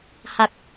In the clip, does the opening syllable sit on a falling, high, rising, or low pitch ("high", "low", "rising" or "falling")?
low